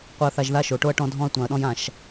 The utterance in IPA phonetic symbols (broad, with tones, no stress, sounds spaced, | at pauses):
qʷ i˨ ɐ̯ θ a˨ ʒ ð a˦ ʃ o˨ ʈ o˦ ɐ̯ ʈ ɔ̃˦ dʱ ɔ̃˦ ɐ̯ tʷ ã˨ ɐ̯ ɗ ɔ̃˦ j ã˦˨ ʃ